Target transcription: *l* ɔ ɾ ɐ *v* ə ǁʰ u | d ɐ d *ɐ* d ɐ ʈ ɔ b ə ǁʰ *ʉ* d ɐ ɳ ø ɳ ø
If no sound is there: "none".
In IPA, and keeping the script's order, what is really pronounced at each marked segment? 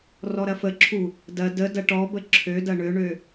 r, f, ə, ø

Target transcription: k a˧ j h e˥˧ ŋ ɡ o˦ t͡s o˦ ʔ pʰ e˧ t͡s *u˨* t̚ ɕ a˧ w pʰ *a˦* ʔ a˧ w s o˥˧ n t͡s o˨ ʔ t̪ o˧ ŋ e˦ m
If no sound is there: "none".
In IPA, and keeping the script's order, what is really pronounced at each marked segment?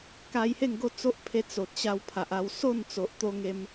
o˨, a˨

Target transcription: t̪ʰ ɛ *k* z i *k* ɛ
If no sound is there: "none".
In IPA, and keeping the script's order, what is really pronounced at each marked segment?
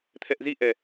ʔ, ʔ

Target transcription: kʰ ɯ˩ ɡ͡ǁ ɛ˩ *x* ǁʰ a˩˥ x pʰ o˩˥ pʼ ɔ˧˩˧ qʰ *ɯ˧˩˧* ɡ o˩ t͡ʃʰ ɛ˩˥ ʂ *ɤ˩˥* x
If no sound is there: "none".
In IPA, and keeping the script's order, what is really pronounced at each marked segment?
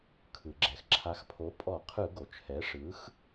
x, ɯ˧˩˧, ɯ˩˥

